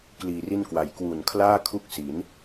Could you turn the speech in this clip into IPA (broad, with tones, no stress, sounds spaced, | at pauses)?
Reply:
k l iː˨˩ r i˥˩ n k w a˨˩ j k w u˨˩ n kʰ l aː˥˩ kʰ u˥˩ k̚ s i˩˦ n